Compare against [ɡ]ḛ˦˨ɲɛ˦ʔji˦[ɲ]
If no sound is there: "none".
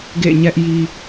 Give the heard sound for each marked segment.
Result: ɡ, none

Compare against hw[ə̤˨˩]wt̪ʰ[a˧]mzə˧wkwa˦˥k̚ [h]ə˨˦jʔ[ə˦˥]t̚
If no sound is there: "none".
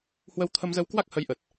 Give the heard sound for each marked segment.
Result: ə˧, ə˧, h, ə˨˩

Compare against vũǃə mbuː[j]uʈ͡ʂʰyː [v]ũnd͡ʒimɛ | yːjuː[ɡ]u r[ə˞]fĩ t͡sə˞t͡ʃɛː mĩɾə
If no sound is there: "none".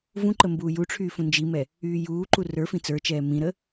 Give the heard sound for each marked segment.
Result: j, f, ǃ, ə˞

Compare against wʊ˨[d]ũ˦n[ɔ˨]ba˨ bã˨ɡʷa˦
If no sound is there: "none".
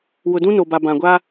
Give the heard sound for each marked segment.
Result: d, o˨

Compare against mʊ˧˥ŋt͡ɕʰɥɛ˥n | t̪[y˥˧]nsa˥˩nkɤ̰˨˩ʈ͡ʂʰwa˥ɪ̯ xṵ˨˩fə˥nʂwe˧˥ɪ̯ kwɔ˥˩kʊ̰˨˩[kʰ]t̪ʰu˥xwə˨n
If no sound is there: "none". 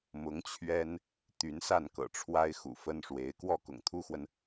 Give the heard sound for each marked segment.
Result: y˧˥, ŋ

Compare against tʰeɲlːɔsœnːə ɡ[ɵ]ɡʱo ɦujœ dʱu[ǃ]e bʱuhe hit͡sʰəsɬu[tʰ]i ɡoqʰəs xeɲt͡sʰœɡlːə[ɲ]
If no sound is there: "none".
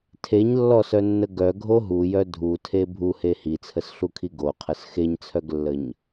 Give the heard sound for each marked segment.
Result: œ, tʰ, kʰ, ɲ

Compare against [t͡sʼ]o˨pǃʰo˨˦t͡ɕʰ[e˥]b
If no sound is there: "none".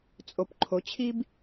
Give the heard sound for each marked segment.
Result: t͡sʼ, i˥

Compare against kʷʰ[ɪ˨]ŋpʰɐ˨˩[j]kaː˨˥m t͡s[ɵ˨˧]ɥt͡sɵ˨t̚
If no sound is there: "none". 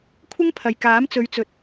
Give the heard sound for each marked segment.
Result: ɪ˥, j, ɵ˨˧

